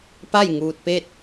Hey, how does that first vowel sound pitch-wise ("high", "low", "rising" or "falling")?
falling